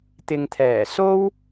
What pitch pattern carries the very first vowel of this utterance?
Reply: low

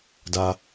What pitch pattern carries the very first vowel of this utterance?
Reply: high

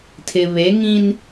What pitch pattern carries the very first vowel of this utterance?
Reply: low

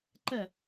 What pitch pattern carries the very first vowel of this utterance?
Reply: falling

